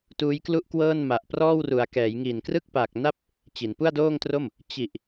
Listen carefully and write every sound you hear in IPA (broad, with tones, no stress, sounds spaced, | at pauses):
t uː˦˥ j k l u˥˩ ʔ k w ɤː˥˩ n m a˨˩ ʔ p r ɔː˥˩ w r u˩˦ a̯ k ɛː˩˦ j ŋ iː˨˩ n k r ɯ˥˩ k̚ p a˨˩ k̚ n a˥˩ p̚ | t͡ɕ i˩˦ n p u˥˩ a̯ d oː˥˩ ŋ t r o˥˩ m | t͡ɕ i˨˩ ʔ